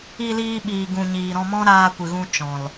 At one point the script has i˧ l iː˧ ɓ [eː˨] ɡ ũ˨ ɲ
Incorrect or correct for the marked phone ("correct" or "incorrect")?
incorrect